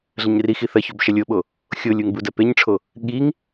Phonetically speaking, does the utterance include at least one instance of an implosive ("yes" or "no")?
yes